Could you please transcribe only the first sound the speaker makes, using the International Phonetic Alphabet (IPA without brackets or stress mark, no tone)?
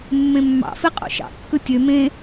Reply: mː